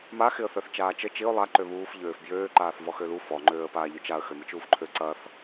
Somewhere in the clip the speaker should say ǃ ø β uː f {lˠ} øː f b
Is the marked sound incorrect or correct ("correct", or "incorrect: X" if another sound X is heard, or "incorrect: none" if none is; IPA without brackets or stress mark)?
incorrect: ʎ